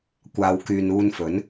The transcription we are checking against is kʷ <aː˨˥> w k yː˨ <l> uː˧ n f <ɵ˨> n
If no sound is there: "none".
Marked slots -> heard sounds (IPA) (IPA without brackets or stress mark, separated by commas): aː˨, n, ɵ˨˥